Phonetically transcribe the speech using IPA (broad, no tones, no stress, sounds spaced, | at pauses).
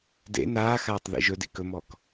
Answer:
d ḛ n aː x aː tˤ ð ḭ ʒ ɵ d ḭ k ɵ m ɔ k